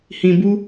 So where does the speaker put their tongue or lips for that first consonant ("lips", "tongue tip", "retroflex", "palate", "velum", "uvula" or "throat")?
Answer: throat